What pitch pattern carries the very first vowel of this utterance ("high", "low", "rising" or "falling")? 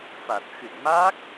low